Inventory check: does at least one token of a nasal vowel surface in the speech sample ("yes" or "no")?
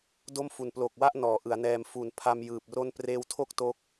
no